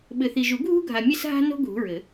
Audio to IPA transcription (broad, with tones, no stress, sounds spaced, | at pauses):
ɓ ɘ˨ θ i˨ ʒ u˨˩˦ ɡʱ ṳ˦ ɡʱ a˨ mʲ ɛ˦˨ s ɦ a̤˦ n o̤˦ ɡʱ ṳ˨˥ ɹ ɘ˨˩˦